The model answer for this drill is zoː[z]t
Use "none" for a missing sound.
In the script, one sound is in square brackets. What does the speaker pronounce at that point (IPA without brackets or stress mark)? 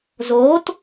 none